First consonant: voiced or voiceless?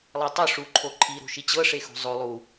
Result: voiced